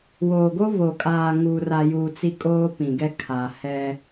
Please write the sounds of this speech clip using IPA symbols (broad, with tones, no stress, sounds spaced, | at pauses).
w oː˨ ɡ o˦ v o˨ kʼ aː˨ ŋ uː˨ r a˨ j u˨ t͡s i˦ kʼ oː˦ p ĩ˨ ɡ ɛ˦ kʰ a˨ h ɛ˦